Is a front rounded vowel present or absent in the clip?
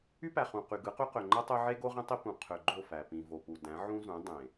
present